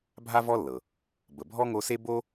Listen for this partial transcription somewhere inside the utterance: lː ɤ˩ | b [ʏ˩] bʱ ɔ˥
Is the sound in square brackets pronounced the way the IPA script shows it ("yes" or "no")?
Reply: no